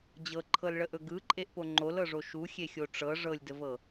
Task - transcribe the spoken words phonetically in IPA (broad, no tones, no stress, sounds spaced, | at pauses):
d͡ʑ ɤ ǃʰ ɤ l ɭ ə ʔ ɵ ɡ ɯ ǃʼ e ʔ p o ŋ͡ǃ o l ɤ ʐ o ʃ u xʲ e xʲ o ʈ͡ʂ ɤ ʐ ɤ lʲ d ə v ɤ